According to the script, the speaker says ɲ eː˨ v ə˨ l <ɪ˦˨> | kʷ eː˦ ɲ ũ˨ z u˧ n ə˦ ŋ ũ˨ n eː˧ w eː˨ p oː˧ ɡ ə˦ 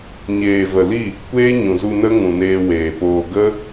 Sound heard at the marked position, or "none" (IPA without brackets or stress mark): i˦˨